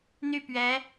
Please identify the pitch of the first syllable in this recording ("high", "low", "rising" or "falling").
falling